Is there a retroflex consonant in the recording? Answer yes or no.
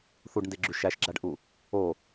yes